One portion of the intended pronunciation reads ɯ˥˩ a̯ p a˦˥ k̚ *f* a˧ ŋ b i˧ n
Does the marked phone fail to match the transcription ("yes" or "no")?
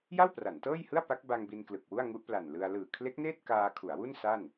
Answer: yes